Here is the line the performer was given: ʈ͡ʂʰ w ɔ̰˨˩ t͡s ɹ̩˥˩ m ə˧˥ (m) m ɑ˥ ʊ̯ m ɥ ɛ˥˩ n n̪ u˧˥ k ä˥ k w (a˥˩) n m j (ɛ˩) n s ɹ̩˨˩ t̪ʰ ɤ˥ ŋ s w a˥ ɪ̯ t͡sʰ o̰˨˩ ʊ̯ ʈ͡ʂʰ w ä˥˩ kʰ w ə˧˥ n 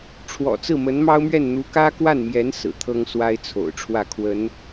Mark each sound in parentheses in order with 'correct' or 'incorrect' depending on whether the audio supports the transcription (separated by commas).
incorrect, correct, incorrect